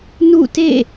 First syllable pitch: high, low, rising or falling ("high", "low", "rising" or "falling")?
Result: falling